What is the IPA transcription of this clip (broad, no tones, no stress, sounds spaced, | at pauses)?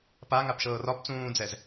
p a ŋ a p ʃ ɤː r ɒ p t͡s ũː d͡z ɛ z